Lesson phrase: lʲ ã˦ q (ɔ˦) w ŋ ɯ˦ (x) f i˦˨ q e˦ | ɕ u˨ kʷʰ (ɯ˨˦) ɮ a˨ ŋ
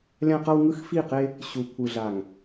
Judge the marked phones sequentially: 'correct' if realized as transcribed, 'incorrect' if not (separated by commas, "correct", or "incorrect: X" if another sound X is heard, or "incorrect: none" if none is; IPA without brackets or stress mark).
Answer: incorrect: ʌ˦, correct, incorrect: ɯ˨